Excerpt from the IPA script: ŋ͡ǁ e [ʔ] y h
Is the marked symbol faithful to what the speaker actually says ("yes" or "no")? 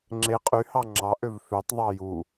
no